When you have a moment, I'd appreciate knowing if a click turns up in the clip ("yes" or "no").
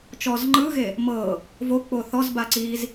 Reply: yes